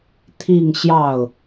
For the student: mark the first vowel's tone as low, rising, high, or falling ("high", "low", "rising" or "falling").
falling